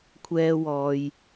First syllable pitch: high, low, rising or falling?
high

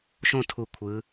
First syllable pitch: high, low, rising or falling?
falling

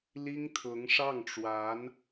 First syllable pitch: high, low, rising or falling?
high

